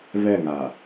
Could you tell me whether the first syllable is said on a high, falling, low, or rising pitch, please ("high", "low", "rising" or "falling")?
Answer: falling